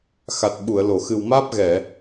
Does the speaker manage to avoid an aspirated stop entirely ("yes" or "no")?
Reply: yes